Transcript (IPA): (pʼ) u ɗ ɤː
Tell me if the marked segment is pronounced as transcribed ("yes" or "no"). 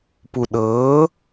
no